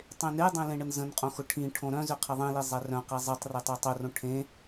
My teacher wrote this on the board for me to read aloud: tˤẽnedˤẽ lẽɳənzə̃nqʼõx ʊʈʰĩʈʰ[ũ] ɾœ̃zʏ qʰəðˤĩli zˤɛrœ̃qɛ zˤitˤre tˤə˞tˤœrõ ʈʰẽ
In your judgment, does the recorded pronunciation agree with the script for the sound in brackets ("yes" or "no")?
no